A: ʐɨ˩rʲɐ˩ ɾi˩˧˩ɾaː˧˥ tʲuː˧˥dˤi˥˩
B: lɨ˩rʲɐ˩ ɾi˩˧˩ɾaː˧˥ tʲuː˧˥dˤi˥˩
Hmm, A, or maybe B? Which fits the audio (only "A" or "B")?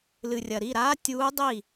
B